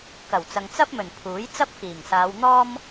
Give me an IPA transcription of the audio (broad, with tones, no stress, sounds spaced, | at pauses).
k ɐ˨˩ w t͡s ɐ˨ ŋ t͡s ɐ˥ p̚ m ɵ˨˩ n pʰ uː˨˥ j t͡s ɐ˥ p̚ k iː˨˩ ŋ s aː˨˧ w n̪ ɔː˥ m